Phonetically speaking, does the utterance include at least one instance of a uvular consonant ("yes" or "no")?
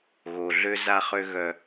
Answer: yes